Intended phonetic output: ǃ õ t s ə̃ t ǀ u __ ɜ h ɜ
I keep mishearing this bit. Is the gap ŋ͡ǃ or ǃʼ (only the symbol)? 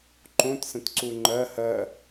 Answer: ŋ͡ǃ